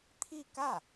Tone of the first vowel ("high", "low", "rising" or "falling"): falling